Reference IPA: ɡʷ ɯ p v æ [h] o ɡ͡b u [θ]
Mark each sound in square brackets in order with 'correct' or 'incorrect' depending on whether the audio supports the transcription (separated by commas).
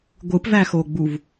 incorrect, incorrect